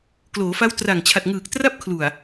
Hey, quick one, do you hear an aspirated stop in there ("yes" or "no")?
yes